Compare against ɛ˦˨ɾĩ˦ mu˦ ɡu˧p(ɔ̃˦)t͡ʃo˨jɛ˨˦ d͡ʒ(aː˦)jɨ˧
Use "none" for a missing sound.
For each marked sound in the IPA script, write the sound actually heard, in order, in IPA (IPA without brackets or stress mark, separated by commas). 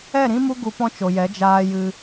ɔ̃˦, aː˧